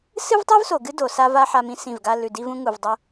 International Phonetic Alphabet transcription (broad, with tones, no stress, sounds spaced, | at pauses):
s ɨ˦ v tˤ ʉ˦ v s o˨ ɡ ɨ˦ d o˨ s a˦ v a˦ ħ a˦ m ĩ˦ s ĩ˦˨ v ɡ a˦ l ʉ˨ d i˦ v ũ˦ ŋ u˨ v dˤ o˦